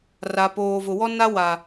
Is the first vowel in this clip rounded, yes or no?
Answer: no